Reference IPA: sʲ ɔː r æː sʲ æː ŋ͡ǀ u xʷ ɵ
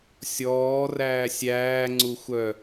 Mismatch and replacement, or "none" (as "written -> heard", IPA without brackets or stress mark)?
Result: ɵ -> œ